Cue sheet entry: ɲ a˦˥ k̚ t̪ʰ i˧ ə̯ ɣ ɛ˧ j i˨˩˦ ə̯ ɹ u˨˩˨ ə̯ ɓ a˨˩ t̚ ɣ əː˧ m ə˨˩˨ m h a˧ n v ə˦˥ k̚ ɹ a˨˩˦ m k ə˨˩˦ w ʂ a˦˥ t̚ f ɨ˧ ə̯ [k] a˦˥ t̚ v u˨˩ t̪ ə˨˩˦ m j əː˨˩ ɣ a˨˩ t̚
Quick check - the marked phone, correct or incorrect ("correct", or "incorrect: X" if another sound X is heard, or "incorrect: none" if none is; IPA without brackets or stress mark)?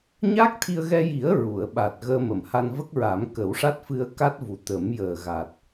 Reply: correct